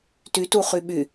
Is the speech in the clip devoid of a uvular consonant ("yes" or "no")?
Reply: no